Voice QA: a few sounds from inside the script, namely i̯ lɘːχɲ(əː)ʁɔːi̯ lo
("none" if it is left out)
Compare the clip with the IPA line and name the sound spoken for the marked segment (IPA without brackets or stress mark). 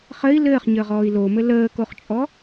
əː